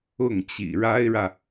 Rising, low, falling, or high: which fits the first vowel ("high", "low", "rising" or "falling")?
falling